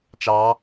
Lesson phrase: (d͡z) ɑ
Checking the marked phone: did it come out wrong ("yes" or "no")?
yes